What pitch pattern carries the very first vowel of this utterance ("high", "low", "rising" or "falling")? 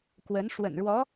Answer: rising